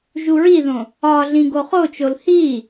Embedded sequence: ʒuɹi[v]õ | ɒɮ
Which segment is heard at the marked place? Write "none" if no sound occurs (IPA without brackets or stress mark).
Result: ð